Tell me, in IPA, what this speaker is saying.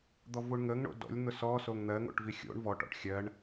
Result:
d̪ɔvuɳŋəŋ ɳo̰dɔ̰lʲ n̪ʊsɔ soŋn̪ɜ ŋo̰ʈvixʲo̰ɳ vɔ ʈɔ̰ʈxʲɜɳ

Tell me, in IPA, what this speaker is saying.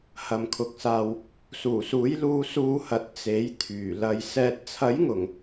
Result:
hɐ˨mkʰʊ˨k̚saː˨w | suː˨˩suː˨˥jluː˧ suː˧hɐ˨t̚ t͡se˨˥jt̪ʰyː˨˩ lɐ˨j sɛː˨t̚t͡sʰɐ˨˥jŋʊ˨˩ŋ

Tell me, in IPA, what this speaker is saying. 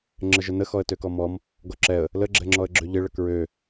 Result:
ŋ͡ǁəʒənə xɔə̯tøkɔmɔm | ɡɔǁɛə̯ | ləɡ͡ǁɛŋ͡ǁɔə̯ɡ͡ǁø ʎɪɭə kɹø

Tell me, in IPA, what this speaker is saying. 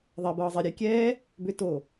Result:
ðˤɛbɤːzˤe ɾʲekʲɛː | bʏto

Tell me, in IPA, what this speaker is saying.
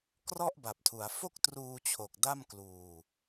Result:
krɔ˥˩ʔba˨˩p̚tʰu˩˦a̯ fo˥˩k̚truː˧t͡ɕʰo˨˩k̚ da˥˩mkluː˧

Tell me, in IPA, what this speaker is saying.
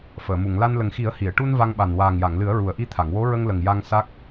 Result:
fəː˨˩˨mu˨˩˨ŋla˧n lə˨˩ŋxi˨˩˦ə̯ hi˨˩˨ə̯ʈu˧n va˧ŋɓa˨˩n waː˨˩ŋja˨˩˨ŋlɨ˨˩˦ə̯ ɹu˨˩ə̯ʔi˧t̪ʰa˨˩˨ŋ wo˧˥ɹə˧ŋlə˨˩ŋ ja˧ŋsa˦˥k̚

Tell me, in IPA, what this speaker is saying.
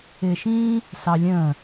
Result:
ɪːʃĩː | sɑlʲə̃ː

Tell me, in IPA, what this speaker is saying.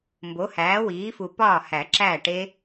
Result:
mbo˩˥hæː˩˥wiː˩˥fu˨˩ pɒː˥˩hæ˨˩˦ǁæː˥˩ʈe˦˥

